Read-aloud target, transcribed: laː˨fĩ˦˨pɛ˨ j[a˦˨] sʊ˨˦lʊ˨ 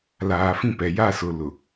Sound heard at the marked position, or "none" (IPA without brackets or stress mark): a˦˨